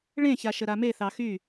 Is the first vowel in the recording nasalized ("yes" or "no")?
yes